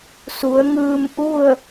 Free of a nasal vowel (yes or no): yes